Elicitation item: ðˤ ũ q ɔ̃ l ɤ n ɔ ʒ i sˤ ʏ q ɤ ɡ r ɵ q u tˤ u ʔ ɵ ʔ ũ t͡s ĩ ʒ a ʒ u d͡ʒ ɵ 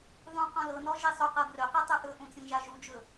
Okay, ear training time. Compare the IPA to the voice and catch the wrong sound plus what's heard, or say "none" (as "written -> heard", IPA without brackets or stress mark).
none